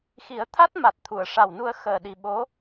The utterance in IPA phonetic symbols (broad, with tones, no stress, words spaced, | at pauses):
xi˨˩˦ə̯t̪ʰa˦˥t̚ma˨˩t̚ t̪ʰu˨˩˨ə̯ʂa˨˩wnu˧ə̯ xəː˨˩ɗi˨˩ ɓo˧˥